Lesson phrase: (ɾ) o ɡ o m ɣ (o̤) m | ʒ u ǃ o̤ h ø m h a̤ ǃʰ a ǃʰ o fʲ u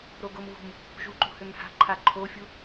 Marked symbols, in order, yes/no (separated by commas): yes, no